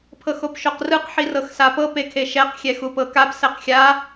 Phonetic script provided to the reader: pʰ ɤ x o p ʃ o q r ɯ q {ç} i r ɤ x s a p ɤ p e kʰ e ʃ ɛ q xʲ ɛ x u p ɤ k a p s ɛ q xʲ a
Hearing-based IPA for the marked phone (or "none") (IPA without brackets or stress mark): ħ